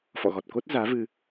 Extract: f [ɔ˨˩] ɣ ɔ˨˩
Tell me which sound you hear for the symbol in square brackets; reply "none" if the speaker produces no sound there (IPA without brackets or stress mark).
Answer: ɔ̰˧˨